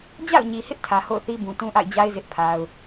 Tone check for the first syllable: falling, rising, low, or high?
falling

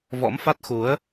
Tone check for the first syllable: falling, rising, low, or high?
rising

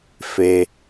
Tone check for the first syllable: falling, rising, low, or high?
low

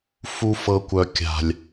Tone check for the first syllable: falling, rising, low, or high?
high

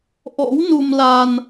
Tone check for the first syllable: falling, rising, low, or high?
rising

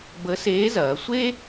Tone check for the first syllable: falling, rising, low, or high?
rising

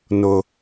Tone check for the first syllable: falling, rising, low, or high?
high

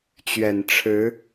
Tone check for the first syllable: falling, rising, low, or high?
low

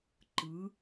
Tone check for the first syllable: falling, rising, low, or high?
rising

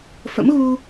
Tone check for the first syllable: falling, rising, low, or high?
rising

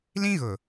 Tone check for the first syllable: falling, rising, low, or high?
high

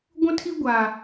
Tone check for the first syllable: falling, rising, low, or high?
high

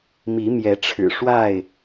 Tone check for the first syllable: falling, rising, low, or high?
rising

